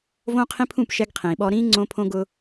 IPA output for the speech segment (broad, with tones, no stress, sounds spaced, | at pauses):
v õː˦ qʰ ĩ˦ pʰ ũ˦˨ p ʃ ɛ˦ ɡ qʰ ĩː˨ ɓ ɔ˦ ɾ ĩː˦ ŋ͡ǀ õ˦ pʰ õ˦ ɡ ʊ˦